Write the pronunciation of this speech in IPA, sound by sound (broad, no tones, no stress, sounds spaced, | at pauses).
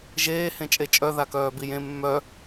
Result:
ʒ eː h ẽ t͡ʃʼ e t͡ʃʼ œ ð a k œː b i j ẽ mː œ